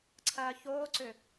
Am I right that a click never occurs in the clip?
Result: no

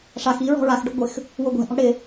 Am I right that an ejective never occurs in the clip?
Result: yes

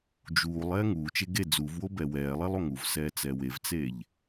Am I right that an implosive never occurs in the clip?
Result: yes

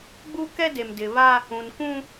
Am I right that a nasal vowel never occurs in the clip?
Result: no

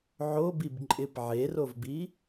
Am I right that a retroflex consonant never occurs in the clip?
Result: yes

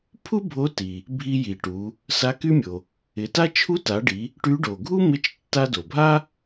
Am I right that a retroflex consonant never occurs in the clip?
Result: no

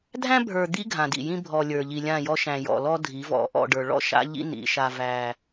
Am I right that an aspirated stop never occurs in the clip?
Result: yes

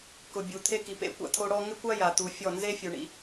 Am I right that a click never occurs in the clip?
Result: yes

